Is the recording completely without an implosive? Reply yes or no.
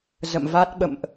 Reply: no